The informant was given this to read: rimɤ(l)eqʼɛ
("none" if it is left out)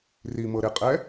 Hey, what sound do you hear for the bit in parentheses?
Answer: ɾ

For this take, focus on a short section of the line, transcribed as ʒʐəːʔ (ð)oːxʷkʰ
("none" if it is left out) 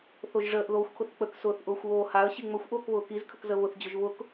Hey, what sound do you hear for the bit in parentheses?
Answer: ð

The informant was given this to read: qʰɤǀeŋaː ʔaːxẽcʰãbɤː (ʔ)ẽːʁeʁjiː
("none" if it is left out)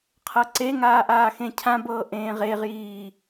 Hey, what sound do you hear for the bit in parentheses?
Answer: ʔ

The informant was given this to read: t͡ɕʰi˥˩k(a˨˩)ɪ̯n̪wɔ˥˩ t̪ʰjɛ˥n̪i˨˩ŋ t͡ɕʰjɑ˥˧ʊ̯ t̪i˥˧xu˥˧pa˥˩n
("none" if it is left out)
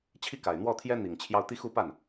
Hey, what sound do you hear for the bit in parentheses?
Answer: a˨˩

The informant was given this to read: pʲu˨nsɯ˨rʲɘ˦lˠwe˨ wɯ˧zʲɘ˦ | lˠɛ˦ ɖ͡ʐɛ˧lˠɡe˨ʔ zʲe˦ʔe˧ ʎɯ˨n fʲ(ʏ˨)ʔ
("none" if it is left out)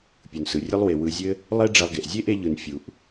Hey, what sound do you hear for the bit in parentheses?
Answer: u˨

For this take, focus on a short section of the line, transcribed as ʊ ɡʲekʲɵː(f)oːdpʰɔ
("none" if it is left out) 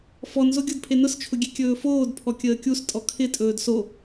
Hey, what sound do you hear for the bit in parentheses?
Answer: f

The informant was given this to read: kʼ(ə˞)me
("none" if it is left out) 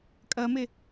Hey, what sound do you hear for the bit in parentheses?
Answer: ɜ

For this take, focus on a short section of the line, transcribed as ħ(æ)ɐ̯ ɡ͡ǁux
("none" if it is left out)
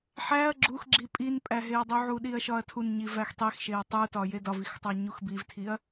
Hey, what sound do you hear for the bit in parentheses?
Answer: æ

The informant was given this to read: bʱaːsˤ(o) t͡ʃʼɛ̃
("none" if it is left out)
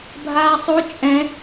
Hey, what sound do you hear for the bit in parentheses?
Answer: o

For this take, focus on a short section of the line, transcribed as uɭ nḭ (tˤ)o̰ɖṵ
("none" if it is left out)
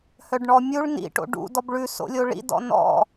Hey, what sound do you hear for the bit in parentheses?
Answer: ʈ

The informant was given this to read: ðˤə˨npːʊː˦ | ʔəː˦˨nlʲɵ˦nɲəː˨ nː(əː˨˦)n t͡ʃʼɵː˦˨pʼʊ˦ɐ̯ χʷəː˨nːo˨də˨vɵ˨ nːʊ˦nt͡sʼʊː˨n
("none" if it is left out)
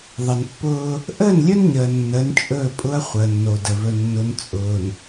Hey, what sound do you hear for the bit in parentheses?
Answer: əː˨˦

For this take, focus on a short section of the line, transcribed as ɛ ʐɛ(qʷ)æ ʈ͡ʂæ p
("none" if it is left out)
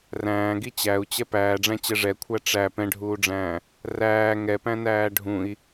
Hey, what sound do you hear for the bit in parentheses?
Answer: kʷʰ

